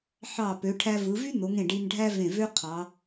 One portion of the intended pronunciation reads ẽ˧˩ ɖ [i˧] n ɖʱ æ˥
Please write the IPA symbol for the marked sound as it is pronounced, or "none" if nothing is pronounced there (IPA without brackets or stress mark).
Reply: i˧